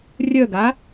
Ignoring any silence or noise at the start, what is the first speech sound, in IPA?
rʲ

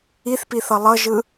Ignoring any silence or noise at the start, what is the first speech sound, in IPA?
i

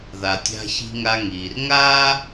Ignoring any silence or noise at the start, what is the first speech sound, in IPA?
ð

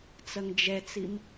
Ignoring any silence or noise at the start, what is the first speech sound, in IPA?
t͡s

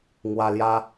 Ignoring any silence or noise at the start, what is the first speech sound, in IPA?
ŋ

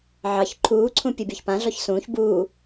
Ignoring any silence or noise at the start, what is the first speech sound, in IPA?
ʕ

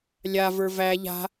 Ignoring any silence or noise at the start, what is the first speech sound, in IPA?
lʲ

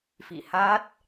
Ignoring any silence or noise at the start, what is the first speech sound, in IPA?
f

